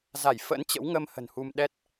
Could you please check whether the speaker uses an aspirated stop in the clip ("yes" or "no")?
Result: no